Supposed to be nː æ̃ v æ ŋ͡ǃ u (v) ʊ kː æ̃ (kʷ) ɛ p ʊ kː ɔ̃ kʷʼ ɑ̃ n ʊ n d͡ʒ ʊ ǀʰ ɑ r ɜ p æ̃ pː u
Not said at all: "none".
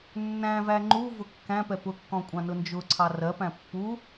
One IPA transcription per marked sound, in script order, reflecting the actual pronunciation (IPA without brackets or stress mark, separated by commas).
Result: v, p